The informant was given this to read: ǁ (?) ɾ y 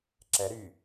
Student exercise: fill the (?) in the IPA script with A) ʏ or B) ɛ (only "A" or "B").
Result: B